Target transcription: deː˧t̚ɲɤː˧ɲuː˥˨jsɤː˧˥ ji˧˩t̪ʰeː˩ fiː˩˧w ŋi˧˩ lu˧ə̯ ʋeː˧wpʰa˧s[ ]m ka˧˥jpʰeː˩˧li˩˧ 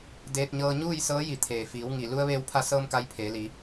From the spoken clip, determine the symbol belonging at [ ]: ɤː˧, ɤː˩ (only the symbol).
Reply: ɤː˧